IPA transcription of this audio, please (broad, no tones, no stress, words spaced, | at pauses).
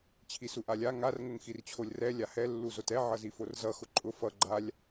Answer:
t͡ɕʰisuʔalʲa ŋar ŋʊŋxirt͡ɕʰolʲrɛ lʲahɛ lːuzotɛ ʕʌziforzʌ xʊǃʼʊ fʌ ɡ͡ǃalʲ